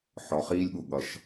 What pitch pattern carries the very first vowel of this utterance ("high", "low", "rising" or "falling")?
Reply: low